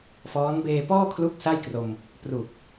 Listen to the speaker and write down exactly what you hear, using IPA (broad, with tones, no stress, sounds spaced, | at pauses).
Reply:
f ɔː˦˥ n b eː˧ p ɔː˥˩ kʰ l u˦˥ k̚ s a˥˩ j k r o˧ m | p r u˨˩ k̚